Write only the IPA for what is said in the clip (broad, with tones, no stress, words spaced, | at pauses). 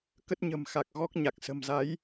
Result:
kə˦˥t̚ɲə̤˨˩m xa˨˩k̚ ɣɔ˦˥k̚ɲa˨˩k̚ sə̤˨˩mza˨˦j